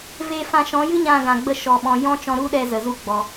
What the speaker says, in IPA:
veː˧fã˧ʃɔ̃˨˦jɨ˦ ɲã˧ɡã˨ɡ͡bə˧ ʃɔ˨ɓɔ̃˨ jɔ̃˦t͡ʃɔ̃˧ɾu˦ɗɛ˧ zə˨zu˧ɡ͡bɔ˨

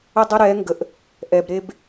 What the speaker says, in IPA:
ə˦dˤə˦ ɾɛ˨˦ŋɡə˨ʔ | ʔɛ˨b ɾe˦b

